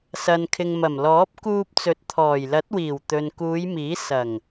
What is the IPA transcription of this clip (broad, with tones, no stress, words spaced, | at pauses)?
sɐ˨nkʰɪ˨ŋmɐ˨˩mlɔː˨˥p̚ kuː˧p̚t͡sɵ˨˥t̚t̪ʰɔː˨˩jlɐ˨˥t̚ wiː˨˩w t̪ɵ˨nkuː˨˧jmiː˨˥ sɐ˨˩ŋ